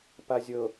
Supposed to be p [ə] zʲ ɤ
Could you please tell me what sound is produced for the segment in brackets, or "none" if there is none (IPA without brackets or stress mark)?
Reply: a